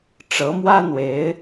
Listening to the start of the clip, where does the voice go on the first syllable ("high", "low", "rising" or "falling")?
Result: rising